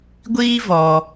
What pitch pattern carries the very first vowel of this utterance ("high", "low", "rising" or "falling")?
high